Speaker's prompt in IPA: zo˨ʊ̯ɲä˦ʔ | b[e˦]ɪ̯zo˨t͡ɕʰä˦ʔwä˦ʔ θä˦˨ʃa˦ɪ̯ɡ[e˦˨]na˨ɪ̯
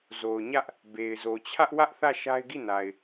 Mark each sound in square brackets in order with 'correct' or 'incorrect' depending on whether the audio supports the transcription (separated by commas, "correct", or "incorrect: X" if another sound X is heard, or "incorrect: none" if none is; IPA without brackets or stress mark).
incorrect: e˨, incorrect: i˦˨